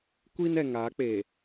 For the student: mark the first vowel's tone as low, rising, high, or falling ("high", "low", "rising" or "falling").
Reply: high